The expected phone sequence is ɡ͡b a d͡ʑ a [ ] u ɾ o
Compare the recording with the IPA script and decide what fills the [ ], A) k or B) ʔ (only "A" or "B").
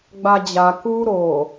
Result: A